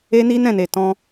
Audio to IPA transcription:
e˦ n i˦ n ɛ̃˦˨ n e˨ t ɔ̃˧

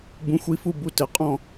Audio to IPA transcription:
b ũ˨˦ xʷ i˨˦ f u˦˨ b u˦˨ t ɘ˨˦ qʼ ɔ̃˦˨

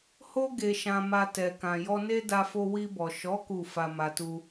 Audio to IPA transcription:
h o˦ ɡ e˧ ʃ ã˧ m a˧ t ɛ˨ k ã˨ j ɔ˧ n e˦ d a˦ f o˦ w i˧ b ɔ˨ ʃ ɔ˨˦ k u˦˨ f a˧ m a˧ t u˦

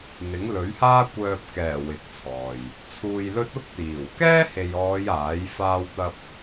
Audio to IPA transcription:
n̪ ɪ˨˥ ŋ l ɵ˨˥ ɥ h aː˥ kʷ œː˧ p̚ k ɛː˨˩ w ɪ˨˥ k̚ t͡sʰ ɔː˨ j | t͡sʰ uː˧ j l ɵ˥ t̚ ʊ˥ k̚ t̪ iː˨˩ w k ɛː˥ h e˨ j ɔː˨˧ j aː˨˥ j f aː˥ w t̪ ɐ˥ p̚

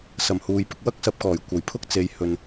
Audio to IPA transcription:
s ɐ˨˩ m h uː˨ j p ɪ˧ k̚ w ɐ˥ k̚ s ɐ˧ p̚ k ɔː˨˩ j kʷ ɐ˨˩ j pʰ ʊ˥ k̚ t͡s e˨ j h ɵ˨ n

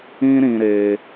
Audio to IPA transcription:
ĩ˦ ɾ ĩ˧ ɾ e˧

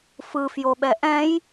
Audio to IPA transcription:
f ɯ f j o ɓ ɛ ʔ ɛ̃ j

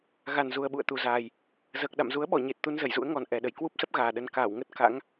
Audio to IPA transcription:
ɣ a˨˩ n z u˨˩ ə̯ ɓ ṵ˧˨ ə̯ t̪ u˨˩ z aː˨˩ j | z əː˨˩ k̚ ɗ a̰˧˨ m z u˨˦ ə̯ ɓ ɔ˧˩ ɲ e˨˩ t̚ t̪ u˧ n z ə˧˩ j z ṵ˧˥ ə̯ ŋ ɔ˨˩ n ʔ ɛ˨˩ ɗ ə˧˩ j k w u˦˥ p̚ s ə˦˥ p̚ ɣ aː˨˩ ɗ ə˧ n k aː˧˩ w ŋ ə˦˥ t̚ k a̰˧˥ ŋ

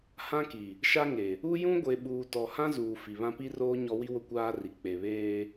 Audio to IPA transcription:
h ã˦ k i˨ | ʃ a˦ ŋ e˨ | u˦ j ũ˦ ɡʷ e˨ ɓ uː˨ t ɔ˨ h ã˦ z uː˨ f i˨ β ã˦ p i˦ r oː˦ ɲ ɔ˦ w i˦ w ʊ˦ kʷ aː˦ r i˨ k͡p e˨ β eː˦

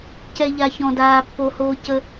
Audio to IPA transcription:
c ɛ˧ ʎ a˧ ç ɔ̃˨ d aː˨ pː o˨ h oː˧ c ə˧

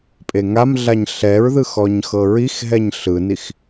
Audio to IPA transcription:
pʼ e ŋ a m ɮ a ɲ ɬ ɛ ɹ ð ɯ x ɔ ɲ x ɤ ɹ i x ɦ ɛ ɲ ɬ ɯ n i x

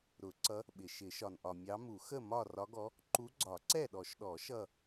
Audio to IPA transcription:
ɾ ʊ˨˩˦ ǀ ʌ˧˥ | ɓ ɪ˩ ʃ ɪ˨˩˦ ʃ ɒ˩ n ʔ ɒ˩ mʲ ɑ˧˥ m u˨˩˦ x ə˥˨ m ɒ˥˨ r ɒ˧˥ ɡ ɔ˧˥ | ǃ u˧˥ ɡ͡ǀ ɒ˨˩˦ ǀ ɛ˥˨ ɗ ɔ˨˩˦ ʃ ɗ ɔ˨˩˦ ʃ ʌ˥˨

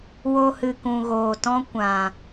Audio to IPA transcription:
w o˧ h ɨ˨ k ũ˨ ɣ oː˨ t ɔ̃˦ kʷ ã˨

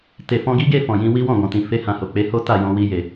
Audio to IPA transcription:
t e˨ f ɔ̃˧ ɡ i˦ ɡ e˦˨ f ɔ̃˨ j ĩ˧ w i˦ w ɔ̃˦˨ ɡ ɔ̃˨ t ĩ˨ f e˧ h ã˨ h o˨ k͡p e˨˦ h o˦ t a˦˨ j ɔ̃˧ w i˧ j e˨

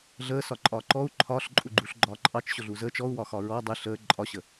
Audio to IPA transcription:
ɮ əː s ɒ ǃʼ ɒː ǃ ɔ u̯ ǃʰ ɒː ɬ ǃʼ u ɡ͡ǃ u ɬ ɡ͡ǃ ɒː ǃʼ ɑ t͡ʃ ɕ ʊ ɮ u z əː t͡ʃ ɔ u̯ w ɒ x ɒ ɹ ɔ dˤ ɪ ɬ əː ǃʼ ɒ ɕ ə

